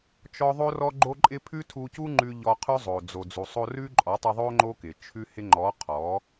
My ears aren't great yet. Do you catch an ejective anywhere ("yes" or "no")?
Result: yes